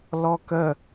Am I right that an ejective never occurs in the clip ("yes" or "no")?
yes